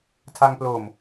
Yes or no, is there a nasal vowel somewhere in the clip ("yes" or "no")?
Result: no